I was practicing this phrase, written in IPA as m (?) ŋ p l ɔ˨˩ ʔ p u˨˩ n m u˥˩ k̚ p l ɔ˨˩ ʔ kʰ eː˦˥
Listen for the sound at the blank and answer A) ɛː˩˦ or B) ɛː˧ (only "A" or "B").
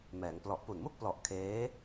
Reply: A